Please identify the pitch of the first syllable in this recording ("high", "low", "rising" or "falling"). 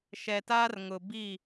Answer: low